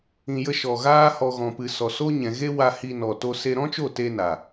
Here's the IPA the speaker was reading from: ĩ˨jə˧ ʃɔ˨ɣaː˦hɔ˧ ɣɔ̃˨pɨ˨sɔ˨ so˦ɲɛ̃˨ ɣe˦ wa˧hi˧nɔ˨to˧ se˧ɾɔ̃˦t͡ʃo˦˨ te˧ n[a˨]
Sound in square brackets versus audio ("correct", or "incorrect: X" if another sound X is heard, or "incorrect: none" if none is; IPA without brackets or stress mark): correct